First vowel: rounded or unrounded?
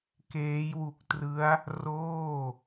unrounded